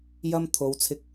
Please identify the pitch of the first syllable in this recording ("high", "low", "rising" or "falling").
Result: high